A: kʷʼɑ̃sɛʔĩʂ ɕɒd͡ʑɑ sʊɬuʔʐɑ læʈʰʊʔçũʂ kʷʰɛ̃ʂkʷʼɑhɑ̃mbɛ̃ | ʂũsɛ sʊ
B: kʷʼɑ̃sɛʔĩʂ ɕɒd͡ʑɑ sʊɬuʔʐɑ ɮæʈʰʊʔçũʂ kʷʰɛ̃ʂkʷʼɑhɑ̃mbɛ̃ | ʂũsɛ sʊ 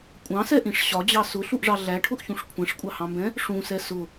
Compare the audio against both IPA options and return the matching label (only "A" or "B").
B